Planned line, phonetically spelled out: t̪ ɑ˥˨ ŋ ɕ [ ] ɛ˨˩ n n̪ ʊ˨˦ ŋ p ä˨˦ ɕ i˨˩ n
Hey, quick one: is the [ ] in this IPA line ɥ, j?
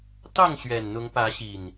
ɥ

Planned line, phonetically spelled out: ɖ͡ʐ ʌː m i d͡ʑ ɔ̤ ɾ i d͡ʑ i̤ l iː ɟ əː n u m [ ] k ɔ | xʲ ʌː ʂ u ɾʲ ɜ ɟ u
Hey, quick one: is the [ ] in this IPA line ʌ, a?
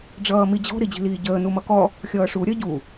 ʌ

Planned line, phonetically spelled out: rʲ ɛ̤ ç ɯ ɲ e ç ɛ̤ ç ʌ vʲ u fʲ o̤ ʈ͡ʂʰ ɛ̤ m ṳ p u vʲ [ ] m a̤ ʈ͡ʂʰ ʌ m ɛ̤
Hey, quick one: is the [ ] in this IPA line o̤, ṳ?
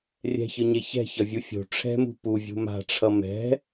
ṳ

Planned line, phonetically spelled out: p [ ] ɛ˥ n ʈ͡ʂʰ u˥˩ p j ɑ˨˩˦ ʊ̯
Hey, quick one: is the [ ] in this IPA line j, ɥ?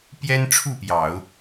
j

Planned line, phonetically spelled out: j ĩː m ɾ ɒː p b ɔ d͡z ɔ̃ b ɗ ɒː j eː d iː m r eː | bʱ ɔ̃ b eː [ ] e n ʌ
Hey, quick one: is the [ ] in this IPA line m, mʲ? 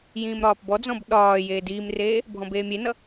mʲ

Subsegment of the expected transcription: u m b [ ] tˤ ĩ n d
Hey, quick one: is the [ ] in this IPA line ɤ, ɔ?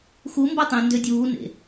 ɤ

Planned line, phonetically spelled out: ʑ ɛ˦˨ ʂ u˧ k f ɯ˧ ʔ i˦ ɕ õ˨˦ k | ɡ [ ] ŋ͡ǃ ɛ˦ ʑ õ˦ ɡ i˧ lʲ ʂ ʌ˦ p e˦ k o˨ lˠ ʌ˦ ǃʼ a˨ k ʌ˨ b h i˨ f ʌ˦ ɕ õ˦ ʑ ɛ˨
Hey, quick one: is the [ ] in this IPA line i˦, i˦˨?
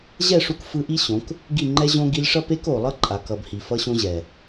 i˦˨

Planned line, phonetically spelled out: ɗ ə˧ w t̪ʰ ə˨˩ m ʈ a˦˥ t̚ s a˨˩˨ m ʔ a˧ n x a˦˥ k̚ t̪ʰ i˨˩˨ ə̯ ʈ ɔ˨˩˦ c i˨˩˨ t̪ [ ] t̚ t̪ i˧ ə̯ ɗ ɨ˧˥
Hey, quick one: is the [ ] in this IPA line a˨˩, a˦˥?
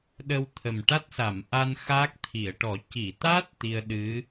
a˦˥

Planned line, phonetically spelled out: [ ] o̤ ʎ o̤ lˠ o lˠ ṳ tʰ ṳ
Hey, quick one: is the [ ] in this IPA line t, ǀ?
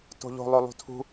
t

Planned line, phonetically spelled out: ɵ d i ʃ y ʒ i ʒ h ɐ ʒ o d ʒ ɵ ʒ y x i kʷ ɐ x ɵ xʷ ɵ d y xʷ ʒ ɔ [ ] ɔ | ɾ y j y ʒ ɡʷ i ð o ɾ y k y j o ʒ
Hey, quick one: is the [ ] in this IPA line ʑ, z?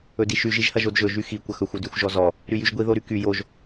z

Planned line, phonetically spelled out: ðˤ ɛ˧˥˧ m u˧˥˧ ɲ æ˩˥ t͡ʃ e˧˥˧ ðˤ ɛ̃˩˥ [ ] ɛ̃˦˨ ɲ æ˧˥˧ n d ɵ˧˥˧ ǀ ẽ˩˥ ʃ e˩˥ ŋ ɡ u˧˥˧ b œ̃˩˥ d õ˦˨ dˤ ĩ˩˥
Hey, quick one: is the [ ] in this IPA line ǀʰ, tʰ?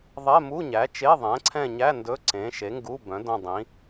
ǀʰ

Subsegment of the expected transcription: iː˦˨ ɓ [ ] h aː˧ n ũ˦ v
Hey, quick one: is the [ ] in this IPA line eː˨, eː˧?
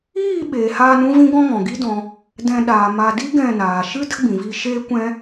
eː˨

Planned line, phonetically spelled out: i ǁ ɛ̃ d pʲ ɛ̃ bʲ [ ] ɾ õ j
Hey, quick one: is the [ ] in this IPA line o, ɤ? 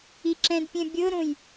ɤ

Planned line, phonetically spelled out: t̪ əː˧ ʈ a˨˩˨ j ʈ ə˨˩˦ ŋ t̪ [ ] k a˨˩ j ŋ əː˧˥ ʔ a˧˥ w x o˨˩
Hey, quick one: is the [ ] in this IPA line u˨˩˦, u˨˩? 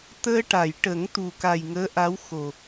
u˨˩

